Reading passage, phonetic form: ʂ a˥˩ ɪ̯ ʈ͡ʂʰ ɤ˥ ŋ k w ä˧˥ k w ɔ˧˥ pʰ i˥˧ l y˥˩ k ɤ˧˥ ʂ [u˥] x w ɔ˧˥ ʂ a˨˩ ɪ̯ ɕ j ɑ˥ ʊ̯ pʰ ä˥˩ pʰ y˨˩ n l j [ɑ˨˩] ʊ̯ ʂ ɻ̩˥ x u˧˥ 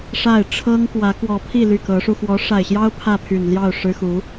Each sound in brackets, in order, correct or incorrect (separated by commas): incorrect, incorrect